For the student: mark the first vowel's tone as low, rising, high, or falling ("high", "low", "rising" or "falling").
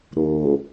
low